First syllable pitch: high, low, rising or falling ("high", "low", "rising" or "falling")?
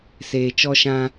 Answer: low